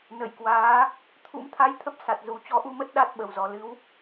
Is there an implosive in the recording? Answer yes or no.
yes